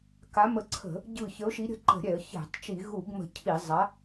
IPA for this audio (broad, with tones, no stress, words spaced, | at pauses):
ka˨˥mə˧˩ǀʰə̤˧˩˧ | ɟɯ˧˩çə˨˥ʊ̯ʃi˨˥ ɾʲə̤˨˥ǃə̤˧˩˧ɾʲɛ˧˩˧ə̯ çɛ̤˧˩˧tˤ t͡ʃi˧˩˧ɣu˧˩˧ɡmə̤˧˩ cʰi˧˩˧ zˤa˨˥